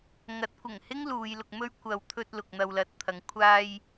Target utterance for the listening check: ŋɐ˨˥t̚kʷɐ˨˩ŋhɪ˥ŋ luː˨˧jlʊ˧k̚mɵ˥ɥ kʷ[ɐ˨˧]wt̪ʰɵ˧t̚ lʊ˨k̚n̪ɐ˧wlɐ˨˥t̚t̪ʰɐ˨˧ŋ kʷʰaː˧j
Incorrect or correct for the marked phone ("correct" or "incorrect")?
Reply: correct